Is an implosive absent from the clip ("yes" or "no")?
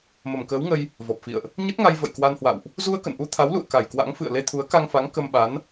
no